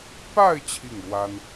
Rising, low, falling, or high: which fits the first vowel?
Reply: falling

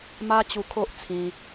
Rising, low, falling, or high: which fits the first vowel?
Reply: high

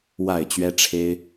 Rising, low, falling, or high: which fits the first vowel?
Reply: falling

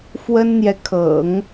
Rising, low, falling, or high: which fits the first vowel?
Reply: high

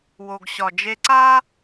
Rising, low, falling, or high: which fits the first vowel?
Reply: low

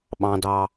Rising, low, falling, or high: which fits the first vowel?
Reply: low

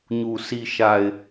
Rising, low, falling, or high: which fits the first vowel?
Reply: low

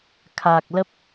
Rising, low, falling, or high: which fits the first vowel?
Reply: low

